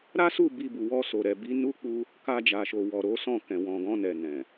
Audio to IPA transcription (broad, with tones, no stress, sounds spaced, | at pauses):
ɾ a˦ s u˦˨ b i˧ b u˨ w ɔ˧ s o˨ ɾ ɛ˨ b i˨˦ n u˦ k͡p u˦ | k a˧ d͡ʒ a˨ ʃ o˨ w ɔ˨ ɾ o˨˦ s ɔ̃˦˨ k ɛ̃˨ w ɔ̃˨ ɡ ɔ̃˧ n ɛ˨ n ɛ̃˨